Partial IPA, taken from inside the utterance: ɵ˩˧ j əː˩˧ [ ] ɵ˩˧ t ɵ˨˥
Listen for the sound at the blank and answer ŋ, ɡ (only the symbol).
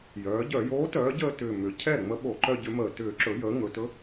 ŋ